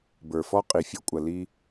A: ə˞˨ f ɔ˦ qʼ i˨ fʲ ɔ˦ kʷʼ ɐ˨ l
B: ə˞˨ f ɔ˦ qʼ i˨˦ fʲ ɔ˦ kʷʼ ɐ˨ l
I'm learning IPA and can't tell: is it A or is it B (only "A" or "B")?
A